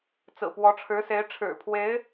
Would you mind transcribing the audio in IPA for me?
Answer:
t͡s ɹ̩˨˩ p w ɔ˧˥ ʈ͡ʂʰ ɻ̩˧˥ s e˧˥ ɪ̯ ʈ͡ʂʰ ɻ̩˨˩ pʰ w e˧˥ ɪ̯

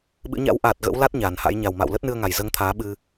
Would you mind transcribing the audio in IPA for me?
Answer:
ɓ ɨ̰˧˥ ɲ a̰˧˥ w ʔ aː˨˩ t̚ ɣ ə̰˧˥ w l a˦˥ t̚ ɲ aː˨˩ n h a̰˧˥ j ɲ a˨˩ w m a̰˧˨ w l ə˦˥ t̚ n ɨ˧ ə̯ ŋ a˨˩ j z əː˧ ŋ t̪ʰ aː˨˦ ɓ ɨ˧

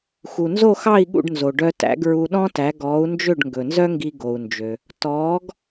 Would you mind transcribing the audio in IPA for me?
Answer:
x u˩ n z o˥˩ x ɑ˥˩ i̯ ɠ ṵ˥˩ ɖ n z o˩ ɖ œ˧ t æ̰˩˥ ɡ ɹ u˧ ɗ ɔ̃˥ t æ˩˥ ɡ ɔː˩˥ u̯ n d͡ʒ ø˥˩ ɖ ŋ ɡ ɵ˩ n z œ˥ ŋ ɡ i˧ ɡ o˩ u̯ n d͡ʒ ø˩ | t ɔː˩˥ ɡ

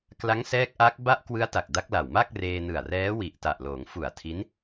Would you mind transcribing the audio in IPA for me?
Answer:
k l a˦˥ ŋ s ɛː˦˥ k̚ ʔ a˦˥ k̚ b a˦˥ ʔ k w ɯ˦˥ a̯ t a˨˩ k̚ d a˦˥ k̚ l a˨˩ w m a˥˩ k̚ r eː˧ n ɯ˨˩ a̯ r ɛː˦˥ w i˨˩ ʔ t a˨˩ ʔ l oː˩˦ ŋ f u˨˩ a̯ tʰ i˦˥ n

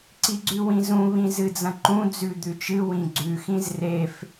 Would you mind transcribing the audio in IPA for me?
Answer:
ǀ i ɡ͡ǀ ʉ w ĩ z ũ β ĩ z ɨ d͡z ɐ̃ ǃ ũ d͡z ʉ d̪ ʉ t͡ʃ ɨ w ĩ ɡ͡ǀ ʉ x ĩ z r e f

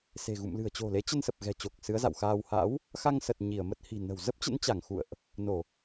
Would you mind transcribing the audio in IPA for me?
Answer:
s e̤˨˩ ɣ ṵ˧˨ m l ɨ̤˨˩ ə̯ t͡ɕ o̤˨˩ l e˨˦ t͡ɕ ə˧ n s ə˨˩ p̚ ɣ ɛ̤˨˩ t͡ɕ o˨˩ k̚ s ɨ˨˦ ə̯ z a̰˧˨ w x aː˧ w h a̰˧˥ w | x a˧ ŋ s ə˨˩ t̚ ɲ i˧˩ ə̯ m ə˦˥ t̚ h i̤˨˩ n ə̤˨˩ w z ə˦˥ p̚ t͡ɕ ə̰˧˥ n t͡ɕ a˧˩ ŋ x ṵ˧˨ ə̯ ʔ | n o˧˩˨

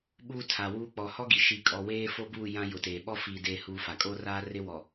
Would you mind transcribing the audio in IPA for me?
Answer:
ɓ uː˦ tʰ a˨ w uː˦ k͡p ɔ˨ h ɔ˦ ɡ i˨ ʃ i˨ kʼ ɔ˨ w eː˦ f o˦ b uː˦˨ j ã˦ j ʊ˨ t eː˨ ɓ ɔ˦˨ f iː˨ d eː˦ h uː˦ f a˨ kʼ o˦ r aː˦ r ɪ˦ w ɔ˨

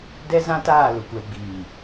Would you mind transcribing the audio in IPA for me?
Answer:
d ɛ˦ z ã˦ t aː˦˨ l ʊ˨ kʷ ɛ˨ ɡ͡b iː˨

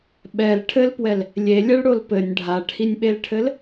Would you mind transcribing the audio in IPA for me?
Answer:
ɓ ɛ l ʈʰ ɘ l p w ɛ l | lʲ e lʲ ɛ ɭ ɽ o l p ɘ nʲ ɖʱ a ʈʰ i nʲ ɓ e l ʈʰ ɘ l

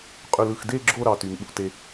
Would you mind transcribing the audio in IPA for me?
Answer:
qʼ y˨ l ɯ˨ x d e˦˨ ɡ͡ǁ o˦˨ ɾ ɑ˦˨ t y˨ ŋ ɓ ṵ˦˨ t e˨

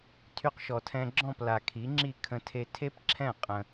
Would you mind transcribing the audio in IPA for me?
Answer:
tʰ y˧ q ʃ ɔ˩ tʰ ɛ̃˧ ɡ͡ǁ ɔ̃˥˩ p l a˩ kʰ i˩˥ ŋ͡ǁ i˥˩ kʰ ə̃˧ tʰ e˧ tʰ e˥ p ǁʰ ɛ̃˥˩ qʼ ə̃˧

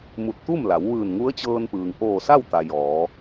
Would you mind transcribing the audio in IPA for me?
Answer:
m u˧˩ t̚ t̪ u˥˨ m l a˩˧ w ʋ ɯː˧˩ n ŋ u˧˥ ə̯ t͡ɕ ɤː˧ n p ɯː˩ ŋ ʔ oː˧˩ s a˥˨ w t̪ a˩ j ɔː˩˧

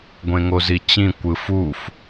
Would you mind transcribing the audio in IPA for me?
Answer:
ɡʷ ẽ ŋ o z i t͡ɕ ĩ kʷ ɯ f u f

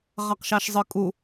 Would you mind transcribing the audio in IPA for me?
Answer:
ʁ ɑ q ʃ ɑ ʃ zˤ ɯ kʼ u

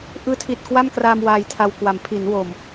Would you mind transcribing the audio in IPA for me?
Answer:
ʔ ɯː˦˥ tʰ i˨˩ t̚ k w a˥˩ m k r aː˧ m w aː˧ j tʰ a˧ w k w a˩˦ m pʰ i˩˦ n w o˨˩ m

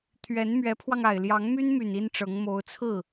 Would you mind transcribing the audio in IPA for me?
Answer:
t̪ʰ ɥ ɛ˧˥ n m ɥ ɛ˧˥ pʰ w ɑ˧ ŋ a˨˩ ɪ̯ l j ɑ˧˥ ŋ m y˥ n m y˨˩ n i˥ n ʈ͡ʂ ɤ˧˥ ŋ m o˧˥ ʊ̯ t͡sʰ ɹ̩˥˩

